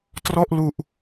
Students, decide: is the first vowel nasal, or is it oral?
oral